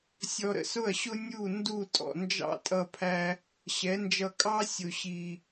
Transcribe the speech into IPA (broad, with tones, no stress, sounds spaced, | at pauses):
sʲ ɔ˧ ɾ ə̰˧ s ʊ˦˨ ɐ̯ ɕ ʊ˦ nʲ u˦˨ n d u˦˨ tʼ ɔ̰˨ n d͡ʒ ɑ̰˦ tʼ ʌ˧ pʰ æ˧ | ɕ ɛ˨˦ n d͡ʒ ʌ˧ kʼ ɑ˦ sʲ ʊ˨ ɕ i˨